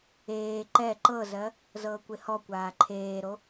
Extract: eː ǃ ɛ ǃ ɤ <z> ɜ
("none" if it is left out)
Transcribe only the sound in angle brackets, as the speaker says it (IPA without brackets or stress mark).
z